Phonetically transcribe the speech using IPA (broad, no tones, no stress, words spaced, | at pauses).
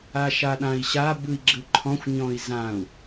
aʃaɗãi̯ɕa bɯi̯ɡ͡ǁɯǃʰɔ̃xʷ ɲɔ̃i̯zãu̯